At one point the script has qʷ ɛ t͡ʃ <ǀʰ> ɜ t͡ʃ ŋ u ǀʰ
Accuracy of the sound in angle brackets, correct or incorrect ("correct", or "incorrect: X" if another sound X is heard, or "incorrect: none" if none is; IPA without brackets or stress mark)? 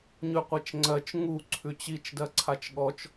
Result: incorrect: ŋ͡ǀ